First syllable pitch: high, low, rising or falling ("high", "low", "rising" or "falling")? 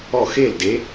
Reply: falling